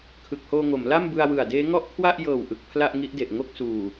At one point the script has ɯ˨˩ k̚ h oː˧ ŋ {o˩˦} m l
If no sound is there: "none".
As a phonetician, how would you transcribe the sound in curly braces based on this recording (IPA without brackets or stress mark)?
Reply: o˩˦